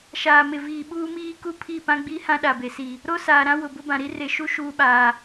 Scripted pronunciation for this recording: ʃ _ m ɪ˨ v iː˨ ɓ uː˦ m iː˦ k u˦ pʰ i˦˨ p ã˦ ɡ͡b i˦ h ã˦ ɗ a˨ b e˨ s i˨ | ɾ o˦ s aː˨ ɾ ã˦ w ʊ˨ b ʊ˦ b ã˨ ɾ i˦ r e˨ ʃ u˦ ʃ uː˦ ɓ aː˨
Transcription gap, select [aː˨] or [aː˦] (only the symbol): aː˨